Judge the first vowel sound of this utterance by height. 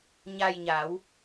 low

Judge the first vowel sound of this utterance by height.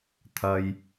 low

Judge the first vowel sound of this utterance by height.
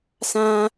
low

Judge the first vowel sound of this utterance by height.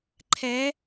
mid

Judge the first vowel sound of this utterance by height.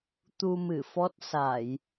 high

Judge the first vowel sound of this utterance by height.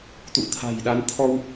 high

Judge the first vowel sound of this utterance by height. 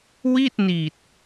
high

